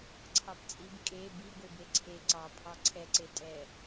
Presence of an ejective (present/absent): present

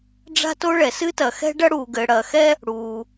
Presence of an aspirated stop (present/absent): absent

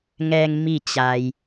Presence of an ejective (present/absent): absent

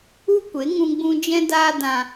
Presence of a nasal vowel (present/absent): present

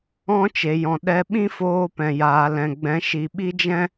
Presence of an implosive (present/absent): present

